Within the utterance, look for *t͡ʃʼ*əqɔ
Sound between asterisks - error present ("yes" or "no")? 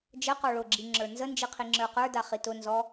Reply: yes